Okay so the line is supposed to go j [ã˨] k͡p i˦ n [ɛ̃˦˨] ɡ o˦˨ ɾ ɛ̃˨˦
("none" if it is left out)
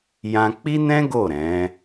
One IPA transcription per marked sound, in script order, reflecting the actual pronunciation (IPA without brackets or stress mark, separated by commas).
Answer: ã˧, ɛ̃˦